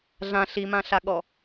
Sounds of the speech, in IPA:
ɮã ɬimãɬaɠɔ

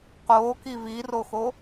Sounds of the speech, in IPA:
qoː kiviroxo

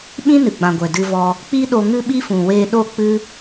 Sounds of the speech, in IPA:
ɓĩ˦nɨ˨ɡ͡bã˨ɡʷɛ˨ dɨ˧vɔ˧ | k͡pi˦ɗo˧ ŋɨ˦ɓi˦fũ˨ weː˧ɗo˦˨k͡pɨ˦

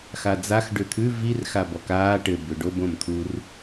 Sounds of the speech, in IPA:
xad͡zax ɖʏt̪ʰʉ vir xabɔkaː ʈɘ bʏɖob õmt̪ʰur

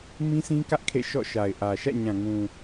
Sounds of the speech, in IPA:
mĩ˦sʰĩ˦kä˦ʔ kʰḛ˦˨ʃɔ̰˦˨ʃa˨ɪ̯ʔä˨ ʃä̰˦˨ɲã˨ŋũ˨

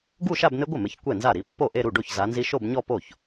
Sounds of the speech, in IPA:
ɡu˥˧ʃa˥˧bn̪ɪ˦˥ɡʷɪ˥˩ mɪ˨˦çkʷɛ˥˩nza˥˩ɾi˨˦ pːo˥˩ʔe˥˧ ɾu˥˩ɖo˥˩ç za˨˦nzi˦˥ ʃo˥˧bɲɔ˥˧po˥˩ç

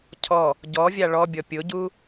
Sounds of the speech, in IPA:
cʰɔ | ɟɔvʲa ɭɔbʲɔ pʲʊɟu

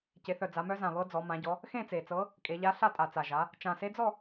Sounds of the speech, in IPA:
ce˩˧θœ˨˩ d͡za˩˧mœ˧˥zã˨˩ βɤ˧˥d͡zɔ˩˧ mã˩˧ɟɔ˩˧ | xẽ˥˨t͡se˨˩t͡sɤ˧˥ | kʼe˩˧ʎa˧˥ɬa˥˨tʼa˨˩ t͡sa˨˩ʒa˩˧ | t͡ʃã˨˩se˧˥d͡zɔ˥˨

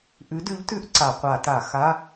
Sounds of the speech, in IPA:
ʔʉ˨˥dʉ˨˥ʎtʉ˧˥˧ʔ ǀa˧˩˧ qʷa˧˩˧ta˧˩˧ xa˧˥˧

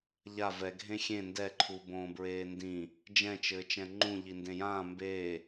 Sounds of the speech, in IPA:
ʎa vɛ ɡʱẽxʲẽ ndɛǃʰu bõːbɹeːndĩ | d͡ʒɛ̃t͡ʃɘː t͡ʃɛ̃ŋ͡ǃũ ʎindẽjãː mbeː

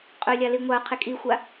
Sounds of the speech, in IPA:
qʼɵlʲa liŋʷaʊ̯qʰe kʼixʷa

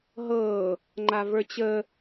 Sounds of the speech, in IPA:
ɦɤ | ŋ͡ǃavə˞t͡ɕə

